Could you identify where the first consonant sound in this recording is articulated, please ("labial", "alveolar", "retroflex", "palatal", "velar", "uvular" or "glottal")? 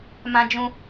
labial